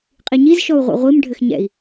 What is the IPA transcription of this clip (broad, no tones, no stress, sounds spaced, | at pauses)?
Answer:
qʼ i ɲ i z ʃ ɔ u̯ ʁʷ ɛ̰ ʁʷ i m ɖʱ ɘ x ɲ ɛ̰ i̯